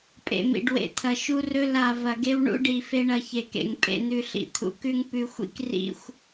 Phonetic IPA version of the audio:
pʼ ḛ˨ m ḭ˨ ɖ w ḛ˨ t̪ʰ ɐ˨ ʃ u˦ r ɵ˦ l a˨ v ɐ˨ ɡ e˦ w ɳ ṵ˦ ɖ i˨ f e˦ ɳ ɐ˦ ç e˨ k ḛ˨ ŋ pʼ ḛ˨ n̪ ʉ˨ ɬ ḭ˨ t̪ʰ ṵ˨ k ʉ˦ ŋ p ʉ˨ xʷ ḭ˦ k r ḭ˨ xʷ

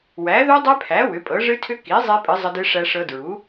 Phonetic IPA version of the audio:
w æ˩˥ ð u˦˥ dˤ ɛ˦˥ pʰ æ˩˥ w ʏ˩˥ pʼ ɤ˩˥ ʐ ɨ˦˥ tʰ ʏ˦˥ k i˩˥ zˤ e˦˥ pʼ ɨ˩˥ zˤ ə˦˥ d ɨ˦˥ ʂ æ˦˥ ʂ ɤ˦˥ d ɹ u˩˥

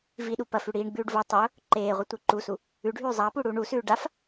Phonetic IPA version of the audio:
v i ɗ u p ɐ f ʉ ɽ iː ɳ ɡ͡b ʉː ɖ v o tˤ ɵ ʊ̯ | ǃ eː ʁʷ i tʷ i ǃ u s u | ʉ ɖʱ ʉː zˤ a p u ɽ uː ɳ u s ʉː ɖ a f

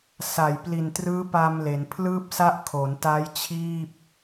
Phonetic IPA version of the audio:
s a˨˩ j p l i˨˩ n t r ɯː˦˥ p a˧ m l e˩˦ n pʰ l ɯː˥˩ p̚ s a˦˥ ʔ kʰ o˩˦ n t aː˦˥ j t͡ɕʰ iː˥˩ p̚

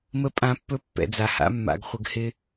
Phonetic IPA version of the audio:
m ə˦ pʼ ã˦ pː ɵ˦ pː ɛ̰˨ d͡z a˨ h a̰˦ mː a̰˧ ɡ χʷ ə˧ ɡ h ɪ˦

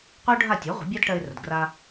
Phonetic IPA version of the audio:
qʷ ɜ˥ ʊ̯ ɖʱ a˥˩ tʲ o˩˥ ʁʷ ə̤˩˥ bʲ æ˥ d ʈ ɜ˧ ɪ̯ r ə˩ d ɡ r a˧

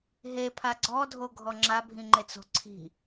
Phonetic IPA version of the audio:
ɦ e pʰ a ɡ͡ǀ ɔ dʱ o ɡʱ ɔ ŋ͡ǁ a bʱ ĩ ŋ͡ǃ e t͡s o̤ ǀʰ i̤

